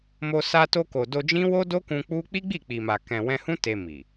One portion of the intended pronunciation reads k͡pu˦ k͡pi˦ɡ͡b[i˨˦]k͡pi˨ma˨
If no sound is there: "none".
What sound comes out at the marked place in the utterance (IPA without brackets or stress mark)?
i˦˨